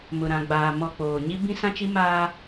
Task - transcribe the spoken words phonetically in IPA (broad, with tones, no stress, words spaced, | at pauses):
mʊ˨ɾã˨ ɡ͡baː˨ mɔ˨ k͡poː˨ɲi˦ bĩ˦sã˦t͡ʃi˦ maː˦